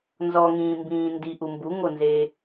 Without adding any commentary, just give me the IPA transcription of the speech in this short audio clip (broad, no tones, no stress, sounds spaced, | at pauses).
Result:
n z ɔ ŋ ĩː m b ĩː n d i ʔ u m b u ŋ o n z eː